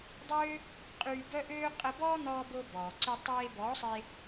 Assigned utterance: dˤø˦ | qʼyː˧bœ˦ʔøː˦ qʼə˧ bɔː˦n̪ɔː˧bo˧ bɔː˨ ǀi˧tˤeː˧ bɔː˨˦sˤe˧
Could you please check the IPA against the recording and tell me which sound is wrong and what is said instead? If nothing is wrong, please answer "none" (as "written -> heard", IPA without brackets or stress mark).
none